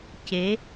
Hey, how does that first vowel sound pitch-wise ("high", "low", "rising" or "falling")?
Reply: rising